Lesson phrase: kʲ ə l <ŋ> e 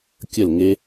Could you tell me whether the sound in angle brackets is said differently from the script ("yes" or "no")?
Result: no